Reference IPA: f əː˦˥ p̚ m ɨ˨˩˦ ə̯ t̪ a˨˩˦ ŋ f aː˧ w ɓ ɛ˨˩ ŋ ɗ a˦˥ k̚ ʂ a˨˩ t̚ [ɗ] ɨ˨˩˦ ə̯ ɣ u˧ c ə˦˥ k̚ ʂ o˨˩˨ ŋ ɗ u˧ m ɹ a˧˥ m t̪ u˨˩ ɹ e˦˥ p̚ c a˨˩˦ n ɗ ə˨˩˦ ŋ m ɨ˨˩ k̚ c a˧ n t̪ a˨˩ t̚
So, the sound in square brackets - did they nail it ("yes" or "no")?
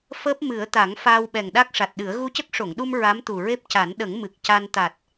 yes